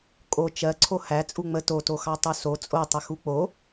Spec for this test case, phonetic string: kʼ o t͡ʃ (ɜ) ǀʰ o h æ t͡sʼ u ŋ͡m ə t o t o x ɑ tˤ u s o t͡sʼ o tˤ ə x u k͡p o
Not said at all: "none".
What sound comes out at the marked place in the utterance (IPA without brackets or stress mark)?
ɜ